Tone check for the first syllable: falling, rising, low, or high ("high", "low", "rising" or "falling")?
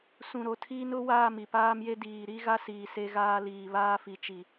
low